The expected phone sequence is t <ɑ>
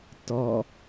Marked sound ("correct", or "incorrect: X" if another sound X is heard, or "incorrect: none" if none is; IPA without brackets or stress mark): incorrect: ɔ